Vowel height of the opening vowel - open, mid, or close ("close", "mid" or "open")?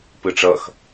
close